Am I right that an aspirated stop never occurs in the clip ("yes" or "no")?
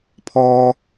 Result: no